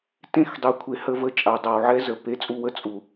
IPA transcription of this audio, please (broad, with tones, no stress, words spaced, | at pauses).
tẽ˦˨xdˤe˨kʷʰe˨hə˦˨ və˦t͡ʃʼa˨ dˤa˨wʕɛ˦zə˨ pe˦t͡sʼu˦wə˦ t͡sʼu˨